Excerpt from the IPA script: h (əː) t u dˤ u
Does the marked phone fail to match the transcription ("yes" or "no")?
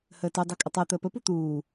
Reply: no